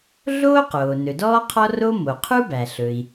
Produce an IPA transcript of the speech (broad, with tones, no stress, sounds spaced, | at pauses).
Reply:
ɮ oː˥ q oː˩ n ɵ˩ d ɔː˥ qʰ ɔ˥ r o˥ m o˩ qʰ u˥ b æ˩ ɬ ɵ˩ i̯